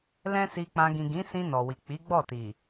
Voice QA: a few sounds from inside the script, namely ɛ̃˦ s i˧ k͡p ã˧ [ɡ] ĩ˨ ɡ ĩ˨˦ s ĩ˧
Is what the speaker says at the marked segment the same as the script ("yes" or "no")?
yes